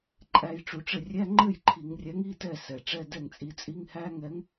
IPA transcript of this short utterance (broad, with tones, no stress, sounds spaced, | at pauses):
ǃʼ æ˧ j ʈ͡ʂ u˧˩˧ ʈ͡ʂ ɘ˥˩ rʲ æ˧˥˧ ŋ͡ǃ ɘ˥˩ j ǃʰ i˧˩˧ ŋ rʲ æ˨˥ ŋ i˧˥˧ t ɛ˥˩ s ɛ˩ ʈ͡ʂ ɛ˧˥˧ d ɛ˥˩ ŋ t͡sʼ i˨˥ t͡sʼ i˧˥˧ ŋ h æ˧˥˧ ŋ ɛ˨˥ ŋ